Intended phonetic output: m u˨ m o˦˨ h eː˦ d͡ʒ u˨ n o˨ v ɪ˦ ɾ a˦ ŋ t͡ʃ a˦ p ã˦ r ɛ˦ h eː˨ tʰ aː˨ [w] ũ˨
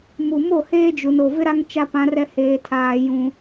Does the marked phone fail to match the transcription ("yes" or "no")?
yes